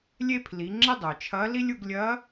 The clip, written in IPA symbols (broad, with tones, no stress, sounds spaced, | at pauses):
lʲ e˥ pʰ l i˩˧ ŋ͡ǁ ə˥ dˤ œ˩ t͡ʃʰ ɐ˧˥ l i˥ lʲ u˧ ɡ lʲ ɐ˧˥